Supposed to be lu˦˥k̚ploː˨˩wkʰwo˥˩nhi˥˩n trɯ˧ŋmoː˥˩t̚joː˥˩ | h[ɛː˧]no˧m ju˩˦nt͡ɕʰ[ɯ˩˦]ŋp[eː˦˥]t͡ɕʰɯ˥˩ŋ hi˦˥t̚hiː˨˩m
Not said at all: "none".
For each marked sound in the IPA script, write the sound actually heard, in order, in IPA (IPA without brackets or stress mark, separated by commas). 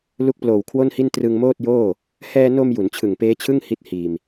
ɛː˧, ɯ˨˩, eː˦˥